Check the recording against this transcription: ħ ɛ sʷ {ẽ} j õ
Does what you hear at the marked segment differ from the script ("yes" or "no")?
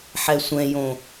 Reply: yes